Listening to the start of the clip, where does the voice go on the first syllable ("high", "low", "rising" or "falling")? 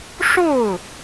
falling